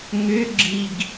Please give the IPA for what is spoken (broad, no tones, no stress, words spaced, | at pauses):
ŋʏɡ͡ǁiɡ